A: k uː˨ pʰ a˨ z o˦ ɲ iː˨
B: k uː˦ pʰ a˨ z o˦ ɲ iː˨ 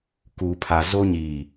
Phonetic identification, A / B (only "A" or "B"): A